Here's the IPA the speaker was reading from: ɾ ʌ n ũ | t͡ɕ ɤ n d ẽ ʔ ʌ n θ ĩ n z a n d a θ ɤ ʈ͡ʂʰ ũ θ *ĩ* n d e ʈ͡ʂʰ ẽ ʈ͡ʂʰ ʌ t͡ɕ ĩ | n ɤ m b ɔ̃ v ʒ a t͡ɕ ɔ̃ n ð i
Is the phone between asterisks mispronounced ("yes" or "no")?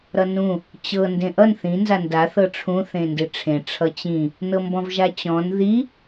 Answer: yes